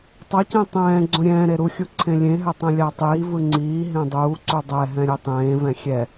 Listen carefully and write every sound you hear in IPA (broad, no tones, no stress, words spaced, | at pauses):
tˤʌcẽ tˤɛ̃ː ɡ͡ǀõɾʲɛ̃ːɾe ɾuxʲu ǀʰẽlʲẽɦɛ tˤẽlʲatˤiːvɯ ŋ͡ǀiːɦẽ dˤuːǀu dˤɛɦɛ̃ ɾʲetˤẽːvɛ̃ xʲɛ